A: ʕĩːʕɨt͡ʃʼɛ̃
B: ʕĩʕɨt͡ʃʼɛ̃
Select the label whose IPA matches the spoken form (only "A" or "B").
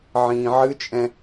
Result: A